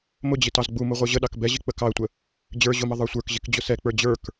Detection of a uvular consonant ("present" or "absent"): present